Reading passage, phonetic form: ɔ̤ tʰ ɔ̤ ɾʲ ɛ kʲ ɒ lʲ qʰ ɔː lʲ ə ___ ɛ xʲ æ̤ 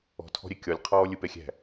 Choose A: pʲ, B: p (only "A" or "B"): B